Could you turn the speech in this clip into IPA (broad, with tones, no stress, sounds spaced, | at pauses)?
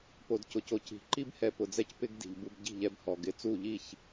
p o˨ d c ʊ˨ c o˨ c i̤˨ ǃ i˦ b h ɛ˧ p ʊ˨ d͡z ɛ˦ c p ɪ˧ ɡ d i̤˨ ʎ b u˧ b ɟ i̤˦˨ ʎ ɛ˧ b h ɔ˨ ɡ ɪ˧ t͡s u˦˨ ʎ i˦˨ ç